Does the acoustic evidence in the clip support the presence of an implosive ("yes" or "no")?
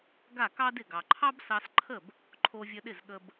yes